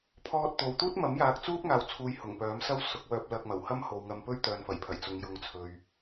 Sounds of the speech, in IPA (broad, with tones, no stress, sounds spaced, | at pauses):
pʰ ɔː˧ t̚ t̪ o˨˧ w t̪ uː˥ t̚ m ɐ˨˥ m j aː˨ k̚ t͡s uː˥ p̚ ŋ aː˨ w t͡sʰ uː˨ j h ʊ˨˩ ŋ p œː˨˥ m s ɐ˥ w s ʊ˨˥ k̚ w œː˧ p̚ l ɐ˧ k̚ m ɐ˨˩ w h ɐ˥ m h o˨ w ŋ ɐ˧ m p ɵ˥ ɥ t̪ œː˨ n f ɐ˨˩ j pʰ ɐ˨˩ j t͡s ʊ˨˧ ŋ j ʊ˨ ŋ t͡sʰ ɵ˨ ɥ